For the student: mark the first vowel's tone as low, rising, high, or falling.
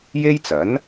high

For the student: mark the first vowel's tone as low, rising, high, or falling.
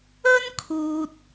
high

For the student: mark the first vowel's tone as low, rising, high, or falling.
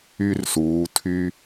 high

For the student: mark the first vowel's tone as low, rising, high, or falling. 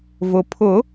low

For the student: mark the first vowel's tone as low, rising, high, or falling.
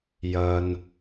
low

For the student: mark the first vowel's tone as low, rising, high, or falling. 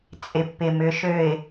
low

